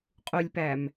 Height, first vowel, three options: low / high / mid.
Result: high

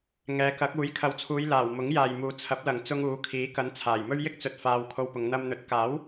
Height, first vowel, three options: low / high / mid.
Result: mid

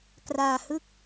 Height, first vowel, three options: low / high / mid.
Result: low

